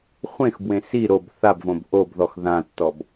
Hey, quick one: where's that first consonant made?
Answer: uvula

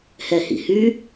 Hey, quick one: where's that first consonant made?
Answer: throat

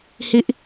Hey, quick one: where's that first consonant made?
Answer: throat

